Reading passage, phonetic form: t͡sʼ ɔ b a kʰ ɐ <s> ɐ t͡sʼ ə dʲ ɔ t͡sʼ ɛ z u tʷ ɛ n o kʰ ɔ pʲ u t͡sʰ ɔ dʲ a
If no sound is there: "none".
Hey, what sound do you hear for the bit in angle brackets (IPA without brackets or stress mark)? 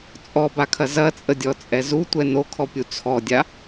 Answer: z